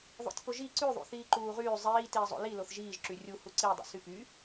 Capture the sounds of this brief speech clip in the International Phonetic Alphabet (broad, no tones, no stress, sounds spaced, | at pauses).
ðˤ o̰ tʲ p o ʒ i ǀ y ðˤ ṵ θ iː ǃ uː ʁ yː zˤ iː t iː zˤ o̰ l i l o θ ʒ iː ʒ ǁ y rʲ u h u ǀ i dˤ o̰ s y p y